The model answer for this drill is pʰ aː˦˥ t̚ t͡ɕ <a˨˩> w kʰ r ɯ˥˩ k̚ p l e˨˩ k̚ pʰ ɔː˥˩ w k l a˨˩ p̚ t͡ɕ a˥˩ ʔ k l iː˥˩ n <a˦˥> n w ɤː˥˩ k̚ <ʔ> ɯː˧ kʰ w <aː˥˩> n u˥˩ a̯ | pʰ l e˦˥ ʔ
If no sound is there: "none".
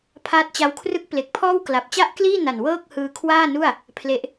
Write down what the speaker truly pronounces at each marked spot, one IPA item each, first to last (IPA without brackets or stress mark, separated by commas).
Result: a˦˥, a˨˩, h, aː˥˩